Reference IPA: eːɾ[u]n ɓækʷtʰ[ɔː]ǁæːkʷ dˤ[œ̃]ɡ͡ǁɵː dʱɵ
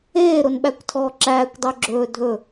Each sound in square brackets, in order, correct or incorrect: incorrect, correct, incorrect

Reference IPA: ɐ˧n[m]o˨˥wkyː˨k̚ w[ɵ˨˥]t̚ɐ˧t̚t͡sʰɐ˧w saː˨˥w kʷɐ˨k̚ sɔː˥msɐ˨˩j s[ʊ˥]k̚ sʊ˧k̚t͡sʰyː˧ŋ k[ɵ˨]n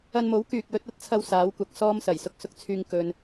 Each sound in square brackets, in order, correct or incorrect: correct, correct, incorrect, correct

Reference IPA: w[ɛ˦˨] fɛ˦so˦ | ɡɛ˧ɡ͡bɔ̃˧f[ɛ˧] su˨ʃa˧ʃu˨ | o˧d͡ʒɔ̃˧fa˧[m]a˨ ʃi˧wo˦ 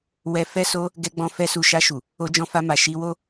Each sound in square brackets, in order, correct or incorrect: incorrect, correct, correct

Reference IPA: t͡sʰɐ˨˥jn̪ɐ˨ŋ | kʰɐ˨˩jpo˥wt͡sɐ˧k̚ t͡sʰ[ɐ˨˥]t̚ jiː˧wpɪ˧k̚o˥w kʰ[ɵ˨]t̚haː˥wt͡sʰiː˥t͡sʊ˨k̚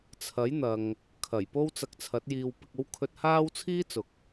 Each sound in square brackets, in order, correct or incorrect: correct, incorrect

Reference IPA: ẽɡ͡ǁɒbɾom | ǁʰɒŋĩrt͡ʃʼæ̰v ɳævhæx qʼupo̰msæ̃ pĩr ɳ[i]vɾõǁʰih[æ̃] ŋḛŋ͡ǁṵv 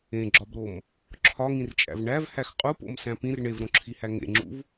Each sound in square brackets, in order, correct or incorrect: incorrect, incorrect

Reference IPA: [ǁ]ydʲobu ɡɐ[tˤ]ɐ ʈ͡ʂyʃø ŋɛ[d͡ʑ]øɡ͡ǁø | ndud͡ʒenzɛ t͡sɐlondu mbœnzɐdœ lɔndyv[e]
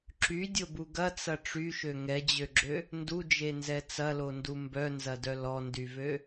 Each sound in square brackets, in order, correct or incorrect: correct, incorrect, correct, incorrect

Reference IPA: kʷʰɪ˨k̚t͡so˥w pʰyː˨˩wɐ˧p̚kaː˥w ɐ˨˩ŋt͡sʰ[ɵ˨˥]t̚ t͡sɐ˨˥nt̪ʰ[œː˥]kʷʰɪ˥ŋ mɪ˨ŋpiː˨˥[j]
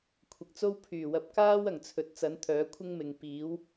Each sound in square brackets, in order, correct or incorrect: incorrect, incorrect, incorrect

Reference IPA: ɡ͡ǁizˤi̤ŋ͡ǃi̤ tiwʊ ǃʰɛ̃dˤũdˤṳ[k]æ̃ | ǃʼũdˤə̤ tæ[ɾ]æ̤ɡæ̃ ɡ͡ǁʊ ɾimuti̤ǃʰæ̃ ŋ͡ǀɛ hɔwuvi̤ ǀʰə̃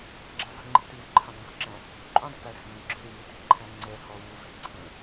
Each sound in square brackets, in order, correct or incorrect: incorrect, correct

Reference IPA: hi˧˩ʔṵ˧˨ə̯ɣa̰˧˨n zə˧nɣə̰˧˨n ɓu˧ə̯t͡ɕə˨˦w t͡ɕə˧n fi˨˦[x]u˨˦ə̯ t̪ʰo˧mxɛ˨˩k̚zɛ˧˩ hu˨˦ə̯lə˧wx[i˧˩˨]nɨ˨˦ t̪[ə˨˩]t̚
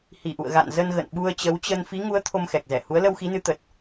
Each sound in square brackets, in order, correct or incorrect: incorrect, incorrect, correct

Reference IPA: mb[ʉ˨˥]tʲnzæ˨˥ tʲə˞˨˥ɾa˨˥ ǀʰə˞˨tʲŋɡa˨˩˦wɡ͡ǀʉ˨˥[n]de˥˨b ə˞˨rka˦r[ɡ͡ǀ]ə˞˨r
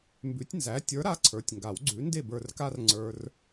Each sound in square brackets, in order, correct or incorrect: correct, correct, incorrect

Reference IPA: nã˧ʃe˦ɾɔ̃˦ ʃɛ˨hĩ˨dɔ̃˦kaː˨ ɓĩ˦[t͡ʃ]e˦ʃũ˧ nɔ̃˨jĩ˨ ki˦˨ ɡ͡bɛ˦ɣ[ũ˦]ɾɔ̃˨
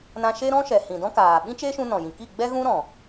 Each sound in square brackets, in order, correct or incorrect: correct, correct

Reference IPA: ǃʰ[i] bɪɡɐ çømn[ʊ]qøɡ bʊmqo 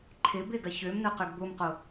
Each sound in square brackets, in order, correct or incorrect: incorrect, correct

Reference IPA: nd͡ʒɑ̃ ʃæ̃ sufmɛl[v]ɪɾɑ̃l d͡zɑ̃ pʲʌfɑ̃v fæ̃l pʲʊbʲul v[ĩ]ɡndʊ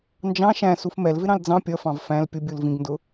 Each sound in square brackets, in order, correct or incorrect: correct, correct

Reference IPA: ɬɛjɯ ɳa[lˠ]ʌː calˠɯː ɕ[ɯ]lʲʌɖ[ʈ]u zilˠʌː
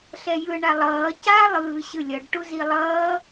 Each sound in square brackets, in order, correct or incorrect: correct, correct, correct

